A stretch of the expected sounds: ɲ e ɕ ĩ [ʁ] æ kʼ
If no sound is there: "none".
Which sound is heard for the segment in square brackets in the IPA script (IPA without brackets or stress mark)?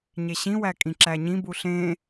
w